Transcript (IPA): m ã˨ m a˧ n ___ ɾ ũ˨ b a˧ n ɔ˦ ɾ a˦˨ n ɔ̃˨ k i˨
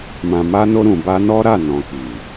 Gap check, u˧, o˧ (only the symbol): o˧